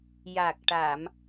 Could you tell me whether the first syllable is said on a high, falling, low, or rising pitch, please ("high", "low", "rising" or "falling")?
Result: low